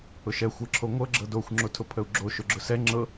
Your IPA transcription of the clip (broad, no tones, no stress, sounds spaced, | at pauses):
ʊ ʃ ɛ xʷ ɤ ǁʰ o ŋʷ ɤ ɡ͡ǁ ɤ d o xʷ ŋ͡ǁ o tʰ ʊ pʰ ə u̯ ɡ͡ǁ o ʃ ʊ ɡ͡ǁ ʊ s ɛ ŋ͡ǁ ɤ